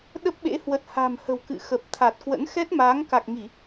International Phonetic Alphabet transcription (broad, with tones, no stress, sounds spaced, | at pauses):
ɗ ə˦˥ p̚ ɓ ḛ˧˥ h w ə˨˩ t̚ h a̤˨˩ m h ə̤˨˩ w k ɨ̰˧˨ x ə˨˩ p̚ t̪ʰ a˨˩ t̚ k w ə̰˧˥ n x ɛ˦˥ t̚ m aː˨˦ ŋ k a˨˩ k̚ ŋ i˧˩˨